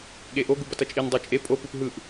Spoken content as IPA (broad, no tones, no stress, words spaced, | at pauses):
ɠeʔo ɡubʌtʌt͡ʃʼin dˤot͡ʃʼe pʼo pɯpɦɯʔ